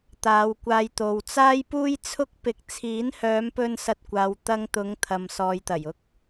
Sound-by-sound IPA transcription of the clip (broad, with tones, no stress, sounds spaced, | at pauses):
t̪ aː˨˧ w kʷ aː˧ j t̪ o˨ w t͡s aː˥ j p uː˥ j t͡sʰ ʊ˥ k̚ p ɪ˧ k̚ t͡sʰ iː˨˥ n h œː˨˧ m p ɵ˧ n s ɐ˧ t̚ kʷ aː˨˧ w t̪ ɐ˧ ŋ t̪ ʊ˨˧ ŋ t̪ʰ ɐ˨ m s ɔː˨ j t̪ ɐ˨˩ j ʊ˥ k̚